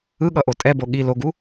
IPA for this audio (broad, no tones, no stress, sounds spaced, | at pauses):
ɯ ɠ ʌ ʔ o tʼ ɛ b o ɠ i l o ɡ u